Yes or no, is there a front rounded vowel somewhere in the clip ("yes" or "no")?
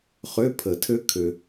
yes